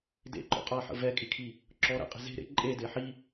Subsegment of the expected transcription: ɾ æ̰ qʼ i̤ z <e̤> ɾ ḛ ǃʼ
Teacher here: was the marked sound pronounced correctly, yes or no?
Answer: yes